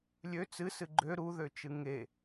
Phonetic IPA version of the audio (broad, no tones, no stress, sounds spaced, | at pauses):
lʲ ø t͡s ɨ s ɨ ɡ͡ǃ ø ɾ u ð ø t͡ʃ ɨ ŋ e